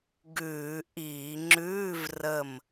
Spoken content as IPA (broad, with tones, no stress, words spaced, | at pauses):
ɡʉː˧˩˧ʔiː˧˩˧ ŋ͡ǁʉː˧˥˧vrə˧˩m